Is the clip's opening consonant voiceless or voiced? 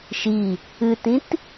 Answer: voiceless